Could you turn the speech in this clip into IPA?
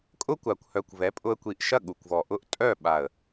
kʼʊ˥kʷa˨˩kʷ hœ˨˩kʷvɛ˩˥pʼʊ˧ə̯kʷi˨˩ʔ ʃɐ˥˨ɠu˨˩kʷvɔ˨˩ʔʊ˥˨ʔ tʼœ˥˨ ɓa˨˩ə̯

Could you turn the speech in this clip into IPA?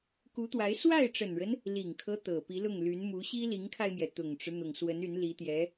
ku˧˥t̪wa˧˥ɪ̯ swa˥˩ɪ̯ʈ͡ʂə˨˩nɻə˦n | li˨˩ŋkʰɤ˦ t̪ɤ˨˩ pi˧˥lʊ˥˩ŋly˧˥nmu˧˥ ɕi˥li˧˥ŋkʰa˧ɪ̯mjɛ˩ t̪ʊ˨˩ŋʈ͡ʂɻ̩˦ n̪ʊ˨˩ŋswə˧˥ny˧˥n li˧˥t̪jɛ˧˥

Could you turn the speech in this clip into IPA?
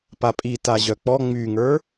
papʼi taʑœk͡pɔ ŋ͡myŋə˞

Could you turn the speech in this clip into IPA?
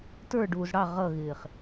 tə˞ ɖuːzɽɑ ʁʌɣɪːχ

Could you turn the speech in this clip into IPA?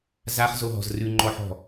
zaχzoɦɔ̤z rʉŋ͡ǃɔħɔ̤

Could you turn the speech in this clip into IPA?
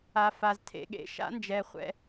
a˨fa˨z tʰḛ˨ɠḛ˨ʃa̰˧nd͡ʒɛ˨ χʷɛ̰˧

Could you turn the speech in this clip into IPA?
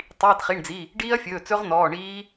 tˤiː˩˧˩tχi˩˧˩ɳd͡zi˩˧˩ | ɖiː˦˥ɐ̯fʲɵː˩˧˩ t͡sɵ˦˥ʁn̪ɔː˩˧˩ɳiː˦˥

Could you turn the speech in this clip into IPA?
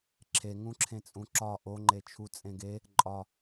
ǁʰeŋũ ǁʰẽt͡sʼũǁɒ ʔoŋ͡ǃet͡ʃʰu t͡sʼẽɡe | ǃʼɒ

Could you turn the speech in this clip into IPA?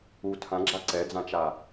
u tʰãɡ͡ǁa ǀɛd͡zãt͡ʃa

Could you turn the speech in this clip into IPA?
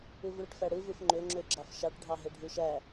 ɯvɭɯʈfæɽɯ vɯfŋ͡ǃø ŋ͡ǁøɡ͡ǁɑfʃɑʈ ɖʱɑɦeɖʱuʃæ

